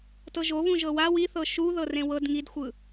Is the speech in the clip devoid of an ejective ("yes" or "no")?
yes